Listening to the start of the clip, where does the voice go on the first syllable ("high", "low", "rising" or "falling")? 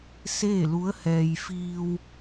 falling